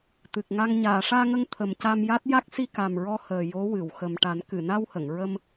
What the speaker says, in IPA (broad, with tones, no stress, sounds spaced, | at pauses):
t̪ ɨ˨˩ k̚ ŋ a˧ ŋ ɲ aː˨˩˨ ʂ aː˧ ŋ ə˧ ŋ t̪ʰ ə˨˩ m c a˧ m j a˦˥ t̚ j a˦˥ k̚ s i˧ k a˨˩ m ɹ ɔ˧ h əː˨˩ j o˧˥ w ɨ˨˩˨ w x ə˨˩ m ʈ a˨˩˦ n k ɨ˨˩˨ n a˧ w h ə˨˩˨ ŋ ɹ ə˧ m